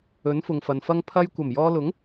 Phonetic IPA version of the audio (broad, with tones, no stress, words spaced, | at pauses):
ɵ˨˥nfʊ˨ŋfɐ˨nfɐ˥ŋ pʰɐ˧j kʷɐ˨˩mjɔː˧lʊ˨˥ŋ